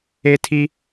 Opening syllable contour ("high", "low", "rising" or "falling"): high